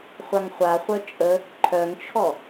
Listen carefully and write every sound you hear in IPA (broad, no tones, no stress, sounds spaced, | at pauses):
χʷ a ŋ χʷ a χʷ œ t͡ʃʼ ə | ǃʰ œ ŋ t͡ʃʰ ɔ